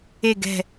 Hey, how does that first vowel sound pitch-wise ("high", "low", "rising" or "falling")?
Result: falling